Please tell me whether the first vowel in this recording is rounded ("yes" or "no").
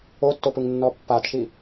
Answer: yes